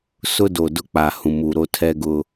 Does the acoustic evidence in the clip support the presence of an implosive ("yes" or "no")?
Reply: no